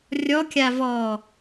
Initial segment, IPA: rʲ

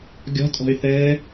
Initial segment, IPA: ɡʲ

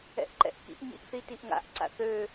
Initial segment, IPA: ɛ̰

